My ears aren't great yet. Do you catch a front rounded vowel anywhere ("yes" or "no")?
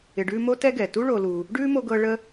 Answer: no